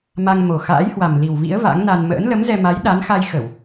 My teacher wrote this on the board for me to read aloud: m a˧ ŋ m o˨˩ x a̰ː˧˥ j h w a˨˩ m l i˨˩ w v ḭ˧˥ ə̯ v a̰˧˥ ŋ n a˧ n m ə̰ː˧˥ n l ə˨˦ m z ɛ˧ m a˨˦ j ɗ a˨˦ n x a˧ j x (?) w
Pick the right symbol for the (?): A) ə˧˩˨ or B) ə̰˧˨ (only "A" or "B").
A